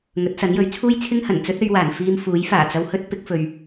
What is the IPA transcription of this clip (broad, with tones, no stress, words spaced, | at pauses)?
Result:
ŋɵ˨˥t̚sɐ˨˥njɵ˨˥ɥ t͡sʰuː˥jt͡sʰɪ˥ŋhɐ˨˩n t͡sɵ˥t̚ɵ˧ɥwaː˨˩n fiː˧mfuː˨˥jfaː˨˩t͡sɐ˧w hɵ˥t̚ pɪ˨˥k̚fɵ˨ɥ